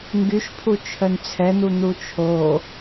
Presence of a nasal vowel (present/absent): absent